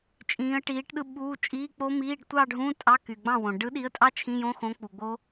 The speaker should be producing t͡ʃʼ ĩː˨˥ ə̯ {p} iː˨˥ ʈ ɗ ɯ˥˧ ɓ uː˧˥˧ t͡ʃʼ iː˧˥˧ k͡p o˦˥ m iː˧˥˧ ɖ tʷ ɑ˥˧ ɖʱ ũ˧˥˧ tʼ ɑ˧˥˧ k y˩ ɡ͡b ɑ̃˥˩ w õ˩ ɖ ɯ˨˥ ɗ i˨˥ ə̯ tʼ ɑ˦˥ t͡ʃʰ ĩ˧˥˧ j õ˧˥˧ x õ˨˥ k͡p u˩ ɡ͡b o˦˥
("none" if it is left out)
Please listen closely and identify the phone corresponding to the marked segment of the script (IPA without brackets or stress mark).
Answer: ʈ